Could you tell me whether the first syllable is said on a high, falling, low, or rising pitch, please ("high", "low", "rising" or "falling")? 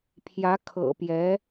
rising